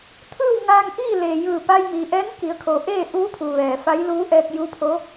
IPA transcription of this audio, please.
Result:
t̪ʰ ɯː˥˨ w ŋ aː˧ ŋ ʔ iː˥˨ l eː˩ j ɯː˧˩ p a˧ j m iː˩ ʔ ɛː˧˥ n k i˩˧ ə̯ kʰ o˩˧ ʔ eː˥˨ ʔ uː˧˥ pʰ u˩ ʋ ɛː˩ f a˧˥ j l uː˧˥ ʔ ɛː˧ k̚ j u˧˥ pʰ o˧˥

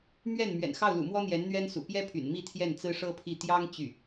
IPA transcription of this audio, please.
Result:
m ɥ ɛ˥˩ n m ɥ ɛ̰˨˩ n x ɑ˥˩ ʊ̯ l ṵ˨˩ m w ɔ˥ n̪ j ɛ˧˥ n n̪ ɥ ɛ˥ n s ṵ˨˩ p j ɛ˥ pʰ y̰˨˩ n m i˥˧ t̪ʰ j ɛ˥˩ n t͡s ɹ̩˥ ʂ ɤ˥ pʰ i˥˩ t̪ j ɑ˥ ŋ t͡ɕ y˥˩

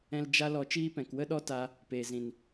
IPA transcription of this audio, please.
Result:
ɛ̃˧ l d͡ʒ a˦ l ɔ˧ t͡ʃ iː˦ p ɛ̃˨ k w ə˦ ɗ ɔ˦ t a˦ | p eː˨ z ĩ˨ n

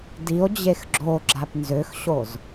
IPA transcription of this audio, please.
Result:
d i o̯ d͡ʑ e x ɡ͡ǁ o ɡ͡ǁ a p n z ø x ɕ o z

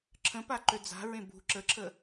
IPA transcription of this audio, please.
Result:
ǁʰ ə̃ p a ǃ ø d͡z a̤ ɹ ẽ b ṳ ǁ ə ǁʰ ə

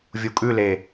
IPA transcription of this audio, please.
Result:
vʲ u kʼ ʉ l e

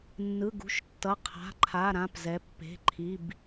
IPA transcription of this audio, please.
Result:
nː ɯ˩˧˩ ɡ ṳ˩˧˩ ʃ tː ʌ˩˧˩ qʰ a̤˩˧˩ ǃʰ a˩˧˩ ɾ ã˩˧˩ p z ɛ˩˧ pː e̤˩˧˩ ǃʰ i˩˧˩ b

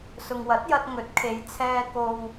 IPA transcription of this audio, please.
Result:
s ʊ˨ ŋ w ɐ˨˥ t̚ j ɐ˧ t̚ ŋ ɵ˨˥ t̚ kʰ e˨˧ j t͡sʰ ɛː˧ k o˨ w

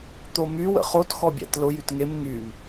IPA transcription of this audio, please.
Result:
t̪ o m y w ə̰ χ o t x ɔ bʲ æ̰ t l ʊ j y t ŋ e m ŋ y m

